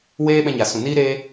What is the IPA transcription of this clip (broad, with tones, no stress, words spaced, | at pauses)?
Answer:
weː˦ ɓɛ̃˧ɲa˨sũ˨niː˦ ɾeː˧